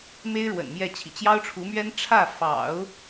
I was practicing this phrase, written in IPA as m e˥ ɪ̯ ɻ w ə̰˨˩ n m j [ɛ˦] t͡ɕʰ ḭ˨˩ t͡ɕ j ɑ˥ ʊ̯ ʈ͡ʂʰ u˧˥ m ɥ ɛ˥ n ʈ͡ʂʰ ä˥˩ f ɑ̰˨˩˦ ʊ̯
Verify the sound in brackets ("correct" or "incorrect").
incorrect